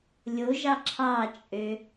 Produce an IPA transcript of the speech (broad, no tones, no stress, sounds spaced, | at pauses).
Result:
lʲ o ʒ ɑ ǁʰ ɑ t͡ʃʼ ø